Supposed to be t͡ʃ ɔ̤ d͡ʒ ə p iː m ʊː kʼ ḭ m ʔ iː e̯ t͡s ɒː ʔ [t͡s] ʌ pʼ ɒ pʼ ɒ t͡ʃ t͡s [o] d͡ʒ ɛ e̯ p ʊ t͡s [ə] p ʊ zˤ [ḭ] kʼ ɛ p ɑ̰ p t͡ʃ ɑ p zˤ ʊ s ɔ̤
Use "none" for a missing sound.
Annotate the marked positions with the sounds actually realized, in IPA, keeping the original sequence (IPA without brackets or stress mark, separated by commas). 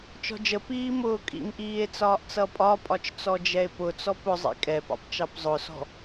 t͡s, ɔ, ɔ, ḭ